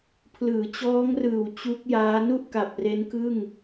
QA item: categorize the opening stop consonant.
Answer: aspirated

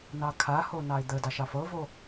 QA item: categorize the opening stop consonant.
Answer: aspirated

